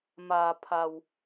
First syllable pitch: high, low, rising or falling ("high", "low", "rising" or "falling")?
low